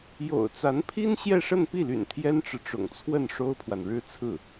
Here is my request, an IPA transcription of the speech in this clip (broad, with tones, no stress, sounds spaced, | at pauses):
j o̰˨˩ ʊ̯ t͡s a˧˥ n pʰ i˥ n ɕ j ɛ˥˧ ʂ ə˥˧ n p i˥˩ l y̰˨˩ n t̪ʰ j ɛ˥ n ʈ͡ʂ ɻ̩˨ ʈ͡ʂ ʊ̰˨˩ ŋ t͡sʰ w ə˥˩ n ʂ o˥ ʊ̯ pʰ w a˨ n ɻ ɻ̩˥ t͡sʰ ɹ̩˥˩